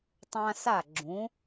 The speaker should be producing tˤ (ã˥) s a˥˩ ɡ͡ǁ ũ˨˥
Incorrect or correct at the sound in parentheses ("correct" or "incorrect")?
correct